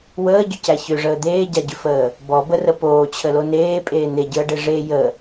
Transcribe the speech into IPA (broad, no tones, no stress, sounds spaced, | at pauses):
w əː ɟ ʏ c æ ç ʏ ʐ əː d̪ eː ɟ a ɟ ʏ f əː | b ɔ b ə r ə p oː t͡ɕʰ ə l o n eː pʼ eː n̪ e ɟ əː ɖ e ʐ e j ə